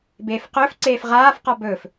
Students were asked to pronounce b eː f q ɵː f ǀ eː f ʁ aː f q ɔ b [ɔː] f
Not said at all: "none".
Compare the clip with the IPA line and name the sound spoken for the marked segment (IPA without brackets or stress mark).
ɵː